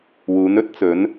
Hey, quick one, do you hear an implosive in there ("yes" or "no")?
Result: no